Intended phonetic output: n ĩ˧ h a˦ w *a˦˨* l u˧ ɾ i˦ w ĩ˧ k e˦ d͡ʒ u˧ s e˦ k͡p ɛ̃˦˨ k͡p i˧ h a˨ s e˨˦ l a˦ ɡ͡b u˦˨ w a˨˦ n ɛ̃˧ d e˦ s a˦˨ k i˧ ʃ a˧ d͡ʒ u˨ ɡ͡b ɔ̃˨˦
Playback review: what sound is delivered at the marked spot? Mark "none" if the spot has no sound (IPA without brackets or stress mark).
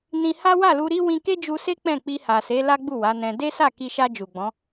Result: a˦˨